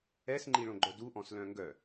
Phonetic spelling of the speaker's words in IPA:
ɛ s ŋ͡ǃ i ɭ õ ɡ͡ǃ œ d u ʔ ɔ̃ s l œ̃ ŋ ɡ œ

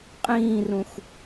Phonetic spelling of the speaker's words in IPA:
qʼ ĩː r ũ x

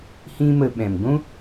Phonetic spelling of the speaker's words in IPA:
h ĩ˦ m ə˧ ɓ ɛ̃˨ m ɡʷ ũ˦

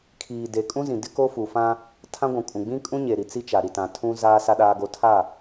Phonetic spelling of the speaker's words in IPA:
kʰ iː˨ d e˨ kʼ ũ˦ z ĩ˨ d ɪ˦ k o˦ f u˨ f ã˦ | tʰ ã˦ ɡʷ ũ˨ kʼ ũ˨ ɡ͡b ĩ˦ kʼ ũ˦ ɲ e˨ ɾ i˨ t͡s i˦ t͡ʃ a˨ ɾ i˨ t ã˨ tʰ ũ˦ z aː˦ s a˦ ɗ aː˦ ɡ o˦ tʰ a˦˨

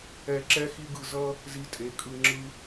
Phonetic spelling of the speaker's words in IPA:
ɛ˧ ǁ ɛ˦ x i˦ ɡ ɯ˧ z ʌ˦ | z i˧ tʼ e˨˦ kʼ ɯ˧ ŋ͡ǁ ɯ˧

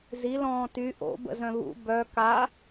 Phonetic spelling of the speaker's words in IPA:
z i l ɔ̃ː t y ʔ o̰ b ə̰ z œ̃ β ṵ b œ k a

